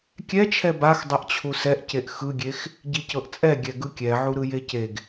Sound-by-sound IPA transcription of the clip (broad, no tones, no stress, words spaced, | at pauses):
kʲɛt͡ʃʰɛ bax dˤɛʔt͡ɕʰusɛʔceʔ xɯɡʲex | ɟicɤʔt͡sʼɛ ɡʲɛɡɯkʲɛʕu ɾɯjeceɡ